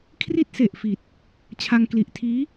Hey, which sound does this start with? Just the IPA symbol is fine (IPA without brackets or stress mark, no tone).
kʰ